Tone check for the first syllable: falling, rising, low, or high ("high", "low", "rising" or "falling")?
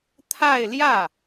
falling